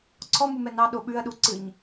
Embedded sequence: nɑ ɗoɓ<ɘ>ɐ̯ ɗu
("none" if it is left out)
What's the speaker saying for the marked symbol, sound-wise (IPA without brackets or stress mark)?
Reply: ʉ